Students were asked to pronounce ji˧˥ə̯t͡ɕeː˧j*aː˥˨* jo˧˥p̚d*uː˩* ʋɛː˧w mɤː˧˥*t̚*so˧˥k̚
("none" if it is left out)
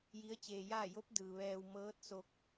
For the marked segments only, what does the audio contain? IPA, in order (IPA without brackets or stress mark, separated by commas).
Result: aː˥˨, ɯː˩, t̚